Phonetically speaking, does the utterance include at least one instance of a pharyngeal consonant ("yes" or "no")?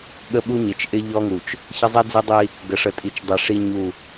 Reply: no